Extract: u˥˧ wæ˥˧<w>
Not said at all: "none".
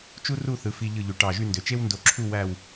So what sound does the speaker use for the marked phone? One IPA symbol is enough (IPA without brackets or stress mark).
w